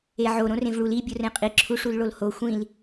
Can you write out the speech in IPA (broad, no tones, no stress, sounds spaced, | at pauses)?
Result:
e ʕ o ɾ õ r ẽ v ɭ u l i bʲ o r ẽ qʼ i ǁʰ u ʂ u l ɭ o l h o xʷ ĩ l